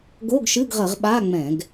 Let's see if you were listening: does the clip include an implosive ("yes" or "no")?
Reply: yes